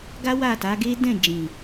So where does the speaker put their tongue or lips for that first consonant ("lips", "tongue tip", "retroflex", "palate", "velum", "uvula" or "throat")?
velum